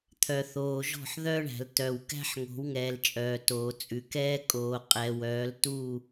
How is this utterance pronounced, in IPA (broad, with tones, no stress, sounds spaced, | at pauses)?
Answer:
t̪ʰ œ˨ θ oː˨ ʒ ɔ̤˦˨ ħ ð œ˦ ɳ æ̤˨ l t œ˨ w k æ̤˦ ħ ŋ o̤˨˦ w ŋ ɛː˨ l t͡ʃʼ œː˨ t oː˨ t͡sʼ ʉ˨ k ɛː˦ kʼ oː˨ qʼ ɛ˨ w œː˨˦ l t u˦˨